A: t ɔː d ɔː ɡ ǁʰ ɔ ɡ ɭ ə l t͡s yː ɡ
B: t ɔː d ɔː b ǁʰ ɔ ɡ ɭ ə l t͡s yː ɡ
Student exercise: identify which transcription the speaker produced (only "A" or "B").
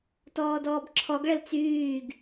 B